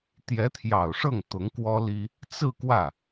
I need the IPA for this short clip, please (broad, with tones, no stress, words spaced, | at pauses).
t̪jɛ˧˥t̪ʰjɑ˨˩ʊ̯ʂɤ˥˩ŋ t̪ʊ˧˥ŋkwɔ˥li˥ | t͡sɹ̩˥˧ kwä˥˩